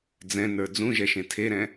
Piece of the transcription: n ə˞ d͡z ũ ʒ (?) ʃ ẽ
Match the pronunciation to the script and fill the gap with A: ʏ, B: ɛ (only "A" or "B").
B